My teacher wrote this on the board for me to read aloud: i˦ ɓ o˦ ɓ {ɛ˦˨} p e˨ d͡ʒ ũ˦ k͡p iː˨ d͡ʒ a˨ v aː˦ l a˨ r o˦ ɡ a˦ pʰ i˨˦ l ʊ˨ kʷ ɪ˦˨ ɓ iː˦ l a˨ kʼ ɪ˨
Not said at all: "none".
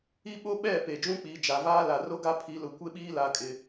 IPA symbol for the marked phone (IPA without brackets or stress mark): ɛ˦˨